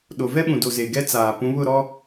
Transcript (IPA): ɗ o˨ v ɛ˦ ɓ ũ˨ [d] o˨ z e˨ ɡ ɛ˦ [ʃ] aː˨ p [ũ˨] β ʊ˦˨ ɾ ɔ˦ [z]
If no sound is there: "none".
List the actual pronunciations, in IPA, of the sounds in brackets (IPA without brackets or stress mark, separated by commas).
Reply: d, t͡s, ũ˨˦, none